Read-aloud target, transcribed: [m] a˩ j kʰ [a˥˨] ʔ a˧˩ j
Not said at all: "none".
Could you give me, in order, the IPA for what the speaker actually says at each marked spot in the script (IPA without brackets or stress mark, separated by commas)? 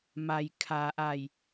m, a˩